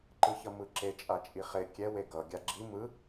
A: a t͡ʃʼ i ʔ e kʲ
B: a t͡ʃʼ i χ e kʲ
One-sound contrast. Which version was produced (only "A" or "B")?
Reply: B